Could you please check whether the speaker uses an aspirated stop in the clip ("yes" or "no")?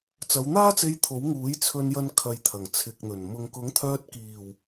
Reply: yes